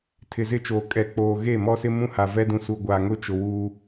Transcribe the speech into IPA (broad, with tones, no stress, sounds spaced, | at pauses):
tʰ ɪ˨ z ɪ˦˨ t͡ʃ oː˨ kʼ ɛ˨ k͡p oː˨ ɣ e˦˨ m ɔ˦ s ɪ˦ m ũ˦ h a˨ v ɛ˦ d ũ˨ s u˨ ɡʷ a˨ ŋ ʊ˦ t͡ʃ ʊ˨ w uː˦